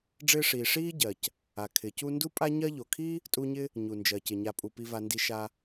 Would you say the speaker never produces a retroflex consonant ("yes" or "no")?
no